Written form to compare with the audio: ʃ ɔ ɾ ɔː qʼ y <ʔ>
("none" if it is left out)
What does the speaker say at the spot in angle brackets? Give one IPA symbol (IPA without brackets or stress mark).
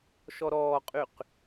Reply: q